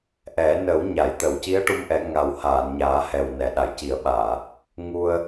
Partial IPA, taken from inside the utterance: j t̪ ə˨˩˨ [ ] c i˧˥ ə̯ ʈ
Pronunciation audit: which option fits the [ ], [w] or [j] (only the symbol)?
w